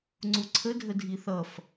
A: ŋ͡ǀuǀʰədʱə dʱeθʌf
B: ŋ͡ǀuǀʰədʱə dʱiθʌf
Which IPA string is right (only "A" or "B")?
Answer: B